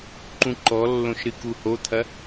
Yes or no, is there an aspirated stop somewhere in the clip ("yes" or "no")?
yes